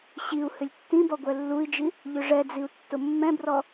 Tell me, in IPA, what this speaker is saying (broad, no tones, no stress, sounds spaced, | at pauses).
ɕ i u̯ h ʏ lʲ tː ĩ b ɔ ɡʷ ɛ lː u i̯ d͡ʒ i | ʎ ʏ ʐ ɛ d͡z i u̯ tː ʊ mː ɛ̃ b r ɔ